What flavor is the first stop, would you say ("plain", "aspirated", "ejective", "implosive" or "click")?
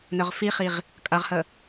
ejective